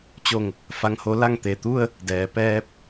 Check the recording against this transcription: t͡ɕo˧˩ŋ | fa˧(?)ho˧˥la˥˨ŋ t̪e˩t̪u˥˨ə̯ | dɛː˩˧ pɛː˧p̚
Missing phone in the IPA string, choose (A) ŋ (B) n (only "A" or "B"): A